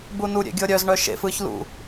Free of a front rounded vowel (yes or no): no